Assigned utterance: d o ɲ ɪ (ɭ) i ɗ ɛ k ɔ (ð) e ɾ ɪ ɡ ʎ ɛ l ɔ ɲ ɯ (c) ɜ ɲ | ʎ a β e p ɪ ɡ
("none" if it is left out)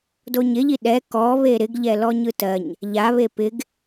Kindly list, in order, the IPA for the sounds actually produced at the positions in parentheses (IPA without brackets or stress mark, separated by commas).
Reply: ʎ, β, t